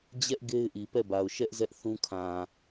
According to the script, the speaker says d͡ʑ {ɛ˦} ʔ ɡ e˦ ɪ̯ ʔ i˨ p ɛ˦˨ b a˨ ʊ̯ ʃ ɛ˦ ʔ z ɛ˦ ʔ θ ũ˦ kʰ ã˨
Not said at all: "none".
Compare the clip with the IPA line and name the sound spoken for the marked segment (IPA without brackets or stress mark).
ɛ˦